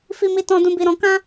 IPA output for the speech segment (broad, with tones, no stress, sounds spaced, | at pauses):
f i˧ m i˧ t ɔ̃˧ d ũ˧ b i˧ ɾ ɔ̃˧ k ã˦